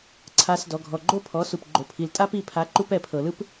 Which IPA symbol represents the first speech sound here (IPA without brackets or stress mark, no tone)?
ǀʰ